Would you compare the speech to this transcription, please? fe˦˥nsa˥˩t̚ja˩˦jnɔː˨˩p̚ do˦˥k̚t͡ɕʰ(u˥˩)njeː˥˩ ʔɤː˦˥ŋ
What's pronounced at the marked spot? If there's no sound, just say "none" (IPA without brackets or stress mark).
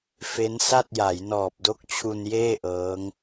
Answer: u˧